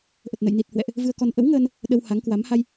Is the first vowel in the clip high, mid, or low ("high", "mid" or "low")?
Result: mid